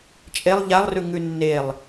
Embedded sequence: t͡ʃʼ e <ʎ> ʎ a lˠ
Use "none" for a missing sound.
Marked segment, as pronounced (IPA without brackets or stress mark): lˠ